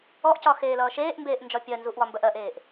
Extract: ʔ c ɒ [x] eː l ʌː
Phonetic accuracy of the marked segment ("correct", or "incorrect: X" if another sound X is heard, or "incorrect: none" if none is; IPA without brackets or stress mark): correct